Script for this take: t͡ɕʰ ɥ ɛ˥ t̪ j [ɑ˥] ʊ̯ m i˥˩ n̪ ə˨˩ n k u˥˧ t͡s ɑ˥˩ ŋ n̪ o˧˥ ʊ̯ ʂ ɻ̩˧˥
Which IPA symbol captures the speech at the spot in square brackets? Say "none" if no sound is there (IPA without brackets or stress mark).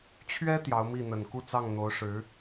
ɑ˧˥